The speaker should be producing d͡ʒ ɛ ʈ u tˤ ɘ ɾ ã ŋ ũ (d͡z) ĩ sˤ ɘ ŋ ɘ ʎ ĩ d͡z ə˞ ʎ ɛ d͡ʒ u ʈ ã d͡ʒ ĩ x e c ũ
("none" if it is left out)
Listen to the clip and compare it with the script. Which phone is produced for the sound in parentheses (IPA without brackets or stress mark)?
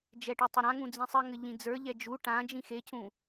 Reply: d͡z